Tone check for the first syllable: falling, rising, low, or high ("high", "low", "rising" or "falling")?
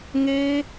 high